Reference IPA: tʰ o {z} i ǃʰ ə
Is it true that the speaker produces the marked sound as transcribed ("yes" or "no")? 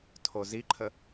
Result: yes